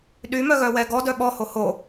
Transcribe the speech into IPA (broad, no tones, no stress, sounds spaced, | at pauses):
ɗ y m œ ɣ œ w ɛ ɡ ɔ d œ ɓ ɔ h o h o